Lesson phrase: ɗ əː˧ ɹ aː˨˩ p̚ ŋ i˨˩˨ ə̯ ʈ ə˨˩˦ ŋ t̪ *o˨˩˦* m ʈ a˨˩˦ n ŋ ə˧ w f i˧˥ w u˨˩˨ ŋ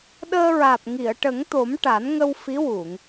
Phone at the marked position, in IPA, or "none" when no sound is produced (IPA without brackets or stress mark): o˨˩˦